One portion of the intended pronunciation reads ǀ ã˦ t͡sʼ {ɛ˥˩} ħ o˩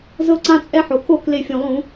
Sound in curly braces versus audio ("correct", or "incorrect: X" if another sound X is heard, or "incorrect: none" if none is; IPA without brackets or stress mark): incorrect: ɛ˦